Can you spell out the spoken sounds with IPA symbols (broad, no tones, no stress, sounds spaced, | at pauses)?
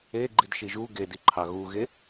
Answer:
e ɡ͡ǃ i d ʃ i ʒ u ɡ e d i ǃʰ ɑ ɣ u ɣ e